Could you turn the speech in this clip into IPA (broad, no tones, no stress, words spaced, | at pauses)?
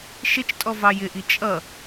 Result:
ʃɪt͡ʃtʼɔ vɑjɪʔi t͡ʃʼʌ